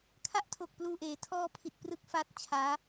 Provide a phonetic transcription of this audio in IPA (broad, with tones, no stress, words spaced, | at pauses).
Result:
kʰa˥˩ʔtʰo˨˩k̚ pluː˨˩ʔeː˩˦ tʰɔː˧ pʰi˨˩t̚prɯ˦˥k̚ fa˦˥t̚t͡ɕʰaː˦˥